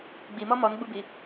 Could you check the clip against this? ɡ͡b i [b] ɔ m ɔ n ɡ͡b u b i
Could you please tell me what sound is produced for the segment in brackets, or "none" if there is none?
m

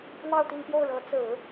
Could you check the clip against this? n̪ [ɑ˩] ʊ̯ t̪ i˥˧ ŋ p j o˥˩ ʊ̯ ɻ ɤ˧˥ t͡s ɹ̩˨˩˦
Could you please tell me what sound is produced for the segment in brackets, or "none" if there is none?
ɑ˥˧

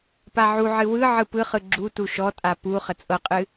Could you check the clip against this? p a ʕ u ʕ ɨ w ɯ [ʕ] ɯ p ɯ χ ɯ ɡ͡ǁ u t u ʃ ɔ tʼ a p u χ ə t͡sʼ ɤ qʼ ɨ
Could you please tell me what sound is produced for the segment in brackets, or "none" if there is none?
ʕ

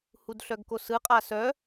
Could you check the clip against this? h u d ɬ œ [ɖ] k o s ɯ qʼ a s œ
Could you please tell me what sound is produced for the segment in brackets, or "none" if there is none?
ɡ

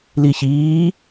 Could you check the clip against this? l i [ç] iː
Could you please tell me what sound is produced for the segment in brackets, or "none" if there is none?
ç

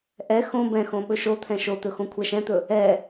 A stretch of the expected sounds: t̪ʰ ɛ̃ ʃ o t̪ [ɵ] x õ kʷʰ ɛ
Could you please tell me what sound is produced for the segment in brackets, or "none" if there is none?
ɵ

